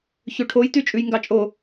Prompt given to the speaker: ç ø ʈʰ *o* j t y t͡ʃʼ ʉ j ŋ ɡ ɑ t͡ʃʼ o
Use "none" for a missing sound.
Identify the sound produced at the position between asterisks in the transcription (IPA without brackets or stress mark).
o